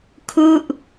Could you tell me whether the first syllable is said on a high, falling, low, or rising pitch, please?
falling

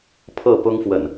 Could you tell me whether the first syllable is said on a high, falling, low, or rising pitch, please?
falling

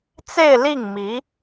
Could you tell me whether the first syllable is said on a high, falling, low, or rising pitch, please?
falling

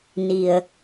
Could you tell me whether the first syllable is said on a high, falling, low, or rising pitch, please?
low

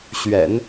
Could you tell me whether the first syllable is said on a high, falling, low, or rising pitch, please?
low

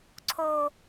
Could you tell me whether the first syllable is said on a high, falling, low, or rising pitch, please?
low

